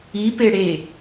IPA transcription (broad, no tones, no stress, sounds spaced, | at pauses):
i p e ɽ e